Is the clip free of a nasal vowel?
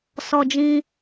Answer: no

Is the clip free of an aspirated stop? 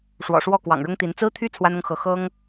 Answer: no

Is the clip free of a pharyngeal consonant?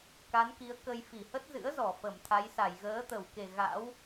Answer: yes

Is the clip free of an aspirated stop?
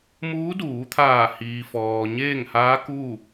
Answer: no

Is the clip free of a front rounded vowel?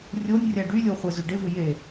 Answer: no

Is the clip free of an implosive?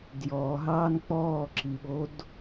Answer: no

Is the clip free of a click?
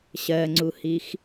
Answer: no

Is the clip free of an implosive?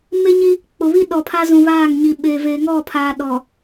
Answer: no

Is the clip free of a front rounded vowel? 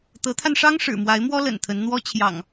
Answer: yes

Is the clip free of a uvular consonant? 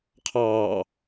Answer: no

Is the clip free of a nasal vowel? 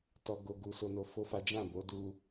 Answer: no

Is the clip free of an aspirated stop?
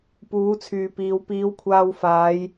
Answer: no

